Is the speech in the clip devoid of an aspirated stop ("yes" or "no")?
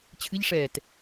no